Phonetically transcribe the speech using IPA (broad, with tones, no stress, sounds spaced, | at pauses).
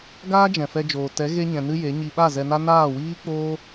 ɡ aː˦ d͡ʒ ɛ̃˨ f ɛ˧ d͡ʒ oː˨ t ɛ˨˦ ɣ e˦ ɲ ɛ̃˧ n ɨ˦ j e˨˦ ɲ i˧ ɓ a˦˨ z ɛ˧ n a˦ n aː˦˨ w iː˦ k͡p oː˦